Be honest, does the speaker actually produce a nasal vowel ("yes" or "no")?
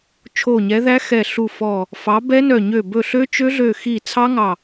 no